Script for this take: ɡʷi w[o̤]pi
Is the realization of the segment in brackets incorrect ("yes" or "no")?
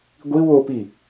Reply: yes